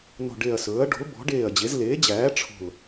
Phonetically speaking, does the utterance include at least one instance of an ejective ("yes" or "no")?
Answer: no